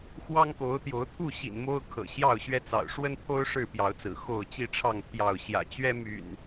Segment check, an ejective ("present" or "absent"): absent